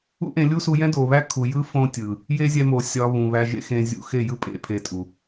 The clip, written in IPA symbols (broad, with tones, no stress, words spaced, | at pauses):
ṵ˦ʔẽ˧lʲu˦su˧ jɛ̃˦do˨βæ˦kʰu˨ jɯ˦ fõ˦tʲɯ˨ | je˦zʲɛ˧mo˨ sʲɒ˧ βũ˨βæ˧ʒḛ˦xẽ˧ zʲṵ˧xe˦˨jɯ˦ pʼḛ˦pʰe˧tʼu˨